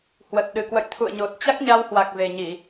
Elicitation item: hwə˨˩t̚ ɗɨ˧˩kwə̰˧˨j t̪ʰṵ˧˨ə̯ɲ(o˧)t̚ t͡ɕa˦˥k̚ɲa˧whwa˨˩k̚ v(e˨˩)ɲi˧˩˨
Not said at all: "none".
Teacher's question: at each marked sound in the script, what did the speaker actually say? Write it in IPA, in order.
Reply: o˨˩, e˨˩

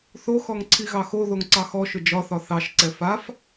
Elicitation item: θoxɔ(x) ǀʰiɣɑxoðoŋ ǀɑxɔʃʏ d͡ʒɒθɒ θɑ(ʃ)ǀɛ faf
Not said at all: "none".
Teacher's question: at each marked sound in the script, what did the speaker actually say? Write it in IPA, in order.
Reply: ŋ, ʃ

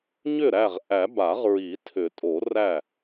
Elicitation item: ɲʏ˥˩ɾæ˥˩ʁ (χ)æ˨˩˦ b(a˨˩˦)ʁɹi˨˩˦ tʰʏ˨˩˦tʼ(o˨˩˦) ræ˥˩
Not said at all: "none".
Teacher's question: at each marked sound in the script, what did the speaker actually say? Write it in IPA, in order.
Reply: ʔ, a˨˩˦, o˨˩˦

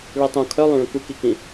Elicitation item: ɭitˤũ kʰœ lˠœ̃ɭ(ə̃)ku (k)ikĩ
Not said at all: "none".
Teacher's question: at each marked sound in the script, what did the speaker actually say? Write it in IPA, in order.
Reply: ə̃, k

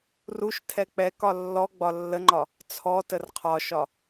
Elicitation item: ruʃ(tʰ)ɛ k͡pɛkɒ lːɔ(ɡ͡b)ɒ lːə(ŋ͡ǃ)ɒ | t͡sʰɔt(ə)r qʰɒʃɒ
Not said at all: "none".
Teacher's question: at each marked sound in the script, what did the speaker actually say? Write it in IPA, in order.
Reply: tʰ, ɡ͡b, ŋ͡ǃ, ə

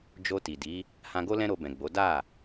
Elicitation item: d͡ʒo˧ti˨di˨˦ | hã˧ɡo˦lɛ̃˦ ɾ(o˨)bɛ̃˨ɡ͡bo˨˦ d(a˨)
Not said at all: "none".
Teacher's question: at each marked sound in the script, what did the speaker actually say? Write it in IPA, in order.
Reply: o˧, a˦˨

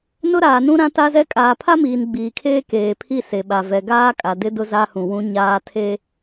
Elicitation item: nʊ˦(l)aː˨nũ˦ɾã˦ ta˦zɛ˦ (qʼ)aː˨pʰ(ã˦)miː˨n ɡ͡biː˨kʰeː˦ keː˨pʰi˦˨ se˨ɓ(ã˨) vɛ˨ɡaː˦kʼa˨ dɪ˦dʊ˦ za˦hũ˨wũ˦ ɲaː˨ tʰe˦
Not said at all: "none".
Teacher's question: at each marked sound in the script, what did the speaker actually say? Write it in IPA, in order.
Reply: ɾ, kʼ, a˦, a˨

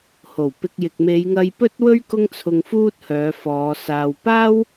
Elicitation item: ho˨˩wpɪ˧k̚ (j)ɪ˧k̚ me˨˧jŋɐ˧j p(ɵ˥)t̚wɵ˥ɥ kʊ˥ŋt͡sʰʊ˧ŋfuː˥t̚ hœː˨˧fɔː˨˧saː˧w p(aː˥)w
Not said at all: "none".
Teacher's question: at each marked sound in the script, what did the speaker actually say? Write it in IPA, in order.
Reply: j, ɵ˥, aː˥

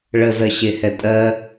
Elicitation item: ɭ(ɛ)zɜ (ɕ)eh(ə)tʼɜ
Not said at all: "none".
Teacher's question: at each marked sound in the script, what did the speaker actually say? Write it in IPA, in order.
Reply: ə, ɕ, ɛ

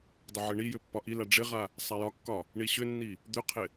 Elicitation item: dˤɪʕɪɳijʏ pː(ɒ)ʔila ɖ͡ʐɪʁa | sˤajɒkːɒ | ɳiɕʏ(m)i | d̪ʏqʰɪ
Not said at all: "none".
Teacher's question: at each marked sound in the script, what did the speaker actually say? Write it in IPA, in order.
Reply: ɒ, nː

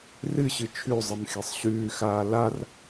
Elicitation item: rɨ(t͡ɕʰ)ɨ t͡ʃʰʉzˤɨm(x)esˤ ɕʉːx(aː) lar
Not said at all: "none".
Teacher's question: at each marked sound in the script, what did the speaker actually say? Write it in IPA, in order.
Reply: ɕ, x, aː

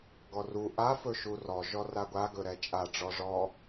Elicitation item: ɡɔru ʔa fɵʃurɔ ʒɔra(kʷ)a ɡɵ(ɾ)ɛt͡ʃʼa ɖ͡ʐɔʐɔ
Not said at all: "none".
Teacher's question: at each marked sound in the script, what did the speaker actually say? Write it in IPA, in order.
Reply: ɡʷ, ɾ

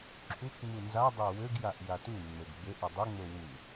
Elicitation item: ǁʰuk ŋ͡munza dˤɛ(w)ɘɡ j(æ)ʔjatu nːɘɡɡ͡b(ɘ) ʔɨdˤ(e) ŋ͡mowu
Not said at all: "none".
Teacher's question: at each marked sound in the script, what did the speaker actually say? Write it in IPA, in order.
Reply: w, a, ɘ, ɘ

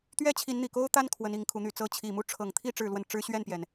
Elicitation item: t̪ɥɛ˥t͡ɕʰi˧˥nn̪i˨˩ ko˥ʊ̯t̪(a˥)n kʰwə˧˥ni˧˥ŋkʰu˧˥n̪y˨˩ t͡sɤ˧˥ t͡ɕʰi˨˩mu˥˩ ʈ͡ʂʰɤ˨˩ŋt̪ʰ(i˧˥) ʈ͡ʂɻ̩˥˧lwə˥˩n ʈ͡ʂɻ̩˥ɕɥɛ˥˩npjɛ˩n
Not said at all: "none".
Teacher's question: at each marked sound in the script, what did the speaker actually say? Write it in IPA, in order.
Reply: a˥, i˥˧

